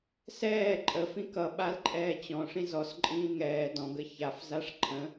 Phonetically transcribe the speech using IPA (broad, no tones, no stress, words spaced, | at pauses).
sɛː ǃʼə fĩkʌ ɓalǃʼɛːt͡ɕɔ̃ ʂĩzɔs ǃʼĩːŋɛː dɔ̃ɡ əçaf zaʂǃʰə̃